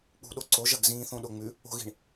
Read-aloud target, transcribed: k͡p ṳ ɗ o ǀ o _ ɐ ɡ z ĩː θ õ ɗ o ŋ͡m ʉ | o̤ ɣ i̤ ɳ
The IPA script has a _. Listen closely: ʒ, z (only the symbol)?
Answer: ʒ